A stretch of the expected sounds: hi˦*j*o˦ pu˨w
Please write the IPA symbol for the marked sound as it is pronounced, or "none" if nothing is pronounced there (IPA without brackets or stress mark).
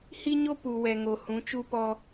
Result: ɲ